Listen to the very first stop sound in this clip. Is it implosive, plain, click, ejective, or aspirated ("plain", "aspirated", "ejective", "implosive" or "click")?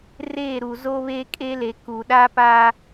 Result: ejective